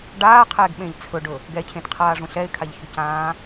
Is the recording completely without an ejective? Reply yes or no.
yes